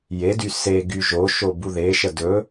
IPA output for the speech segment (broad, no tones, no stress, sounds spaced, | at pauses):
j e d y s e ɡ y ʒ o ʃ o b u ð e ʃ ə d ɵ